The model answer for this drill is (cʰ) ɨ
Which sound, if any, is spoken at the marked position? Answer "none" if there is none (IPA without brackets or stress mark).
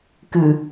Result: k